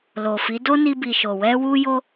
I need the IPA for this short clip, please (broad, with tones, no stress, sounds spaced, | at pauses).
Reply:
l o˨ f i˨˦ d o˦ n i˧ b i˨ ʃ o˨ w ɛ˧ w u˧ j o˧